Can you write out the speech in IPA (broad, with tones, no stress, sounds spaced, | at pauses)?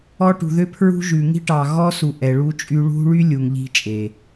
ɔ˦ ʈ ṳ˨ ð ø˦ pʰ ɹ ṳ˦ ʒ ʉ˨ ŋ i̤˦ ʈ ɑ˨ ɣ ɔ˦ s u˨ ʔ ɛ˨ ɭ u˦ t͡ʃʼ y˦ ɭ ṳ˦ ɭ y˦ lʲ u˨ ŋ ʎ i̤˦ t͡ʃʼ e˨